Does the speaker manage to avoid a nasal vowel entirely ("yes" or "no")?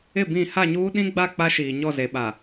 no